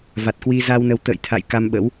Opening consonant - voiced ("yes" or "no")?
yes